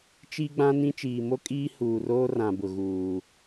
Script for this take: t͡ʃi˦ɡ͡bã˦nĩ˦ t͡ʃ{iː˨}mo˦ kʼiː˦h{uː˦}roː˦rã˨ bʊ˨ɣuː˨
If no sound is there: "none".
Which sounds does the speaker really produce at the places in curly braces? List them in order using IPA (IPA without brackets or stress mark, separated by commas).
iː˨, uː˨